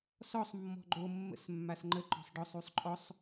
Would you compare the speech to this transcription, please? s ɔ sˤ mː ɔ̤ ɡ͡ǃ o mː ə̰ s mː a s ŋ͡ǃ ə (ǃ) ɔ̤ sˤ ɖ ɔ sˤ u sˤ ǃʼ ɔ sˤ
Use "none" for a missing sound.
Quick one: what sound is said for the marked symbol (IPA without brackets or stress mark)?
ǃ